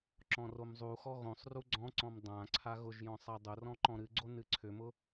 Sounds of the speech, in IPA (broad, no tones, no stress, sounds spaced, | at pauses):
ǁ ɔ̃ r o m zˤ u x ɔ ɣ õ sˤ r u ɡ͡ǀ ɔ̃ ǀ ɔ̃ m dˤ ã ǀʰ a ɣ ʊ ʒ j ɔ̃ sˤ a dˤ ʊ r ɔ̃ ǃ ɔ̃ ɾ ɨ ɡ͡ǀ o n ɨ ǀʰ ʏ m ʊ